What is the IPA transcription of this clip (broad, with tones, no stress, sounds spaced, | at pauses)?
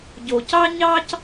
ɟ o˨ c ɑ˥ ɲ ɑ˥ c